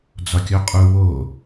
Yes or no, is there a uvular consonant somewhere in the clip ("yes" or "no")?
yes